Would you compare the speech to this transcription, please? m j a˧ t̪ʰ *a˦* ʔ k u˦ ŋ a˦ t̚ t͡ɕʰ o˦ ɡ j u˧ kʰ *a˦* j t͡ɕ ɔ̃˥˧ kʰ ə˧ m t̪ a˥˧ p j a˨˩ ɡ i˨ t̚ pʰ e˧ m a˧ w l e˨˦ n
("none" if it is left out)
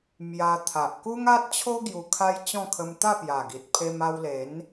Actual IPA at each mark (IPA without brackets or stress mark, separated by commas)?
a˨, a˦